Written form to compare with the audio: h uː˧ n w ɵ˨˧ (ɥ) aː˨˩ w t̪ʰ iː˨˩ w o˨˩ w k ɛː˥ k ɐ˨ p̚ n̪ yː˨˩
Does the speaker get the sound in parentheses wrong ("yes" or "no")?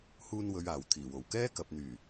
no